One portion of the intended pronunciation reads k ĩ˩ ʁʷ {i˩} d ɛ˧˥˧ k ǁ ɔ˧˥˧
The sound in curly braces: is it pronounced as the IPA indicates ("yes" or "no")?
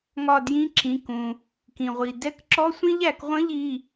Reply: yes